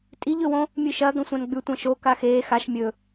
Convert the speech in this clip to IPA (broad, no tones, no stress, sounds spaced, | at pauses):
tʼ i ʎ ɵ w õ | mʲ ɨ ʃ ɐ ɡ ɐ̃ sʷ ã n ɡ͡b ʉ tʷ ɐ̃ ʃ o k a x eː x a ʃ mʲ ɵ